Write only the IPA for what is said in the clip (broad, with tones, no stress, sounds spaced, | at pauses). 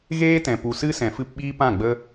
ɣ eː˦ t ɛ̃˨ p u˨ s ɨ˦ s ɛ̃˨ f ɨ˧ p ɓ iː˦ p ã˦˨ ɡ͡b ə˦